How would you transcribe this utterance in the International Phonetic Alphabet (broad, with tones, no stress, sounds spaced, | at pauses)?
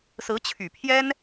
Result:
s ɹ̩˧˥ t͡ɕʰ y˨˩ pʰ j ɛ˥ n